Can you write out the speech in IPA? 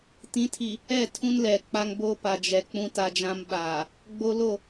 tĩ˨˦tʰi˨ | ɛ˦˨ tʰũ˦nlɛ˨k͡pa˦ŋ bo˦pa˨ d͡ʒɛ˨k͡pũ˦ ta˦d͡ʒã˦mɓaː˨ | ɡ͡bo˦lo˦˨

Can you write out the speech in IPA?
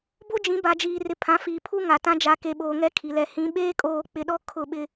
bo˦d͡ʒĩ˨˦ ba˨d͡ʒiː˨ rɪ˨ pʰã˨˦fiː˨pʰu˦ŋa˨ tã˦ d͡ʒa˨ke˨ ɓoː˨ŋɛ˦ kʰi˨ lɛ˨hĩ˨˦ ɓeː˦kʼoː˨k͡pɪ˨ɗɔ˦ kʰʊ˦˨ɓɪ˦

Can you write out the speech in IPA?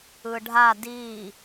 ɯɖʱa di

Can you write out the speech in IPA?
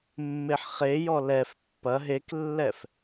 mːeħχejɔ lɛf pːɐ ɦeklːɛf

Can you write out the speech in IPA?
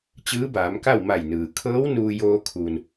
t͡ɕɯː˧˥baː˩˧mka˥˨w ma˧˩jnɯː˩ kʰɤː˧˥w nuː˧joː˧kʰu˩n

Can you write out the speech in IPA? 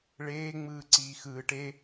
ɭeːŋ͡mɯː ǀiːxɯːʈ e

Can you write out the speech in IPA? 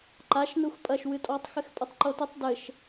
ǃaʃ nuxpʼɐʃ wɨtʼɔtˤ xɘxpʼɨtˤǃotɨtˤ dɘʃ

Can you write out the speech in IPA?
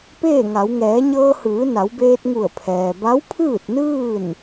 peː˥˨ŋa˩˧w ŋɛː˩˧ɲɤː˧hɯː˩˧ na˩˧wbeː˧t̚ŋu˧˩ə̯ pʰɛː˩ ba˧˥wpʰɯː˥˨t̚nɯː˥˨n

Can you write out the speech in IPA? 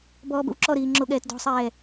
bɔːbə̰wǁɔɾiː ŋ͡ǁoɠɛːtdɔ̤sˤɛː

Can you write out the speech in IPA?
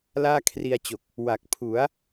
laː˥˩kʰri˧a̯t͡ɕo˨˩k̚ | wa˨˩k̚pʰu˩˦a̯

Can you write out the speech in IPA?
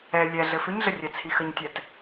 ɛ lʲɛ ɮɘfʏɲɮə rʲɛt͡sʰixəɲtʲɛt

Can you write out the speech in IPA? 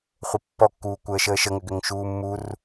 χʷəpːɔkːuː kʷəːʃəːʃəŋʏ ɡʏŋʃuːmːur

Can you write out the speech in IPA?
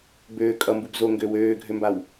bøː kʼʌmbub zoŋɡø wøːɡʱømbaw

